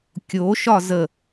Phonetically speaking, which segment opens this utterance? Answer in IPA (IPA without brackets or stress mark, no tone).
kʲ